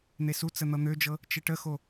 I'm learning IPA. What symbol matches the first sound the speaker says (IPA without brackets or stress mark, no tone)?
n̪